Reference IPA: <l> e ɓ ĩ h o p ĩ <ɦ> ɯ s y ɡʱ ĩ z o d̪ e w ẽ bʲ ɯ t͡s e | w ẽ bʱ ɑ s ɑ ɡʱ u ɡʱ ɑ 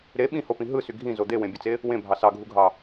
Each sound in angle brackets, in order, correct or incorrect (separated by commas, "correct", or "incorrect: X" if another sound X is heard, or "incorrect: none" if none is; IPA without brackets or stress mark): incorrect: ɾ, correct